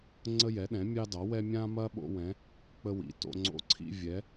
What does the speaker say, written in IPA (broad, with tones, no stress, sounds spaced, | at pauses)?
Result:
ŋ͡ǀ ə˦ j ɛ˩˥ ɗ ɛ̃˩˥ mʲ ɑ˦ d ɑ˩˥ w ɛ˦ mʲ ã˦ m ɐ˦ ɓ o̰˦ w ɛ̃˩˥ | k͡p ə˦ w ḭ˩˥ t o̰˦ ŋ͡ǀ o̰˦ ǀʰ ḭ˦ vʲ ɛ˩˥